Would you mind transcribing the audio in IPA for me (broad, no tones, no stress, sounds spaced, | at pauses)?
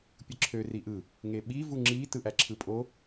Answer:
pʲ ɯ ǁʰ ø r i ʔ ɯ | ŋ e ɓ i v u ŋ͡ǁ i t ɯ ʔ æ ǁʰ ɯ pʼ o